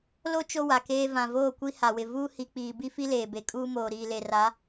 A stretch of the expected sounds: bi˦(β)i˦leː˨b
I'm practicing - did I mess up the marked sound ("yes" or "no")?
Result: yes